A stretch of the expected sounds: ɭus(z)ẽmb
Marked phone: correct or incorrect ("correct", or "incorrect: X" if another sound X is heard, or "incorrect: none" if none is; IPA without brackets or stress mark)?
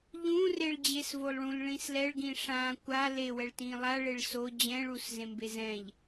correct